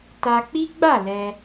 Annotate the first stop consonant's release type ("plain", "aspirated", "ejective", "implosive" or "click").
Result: plain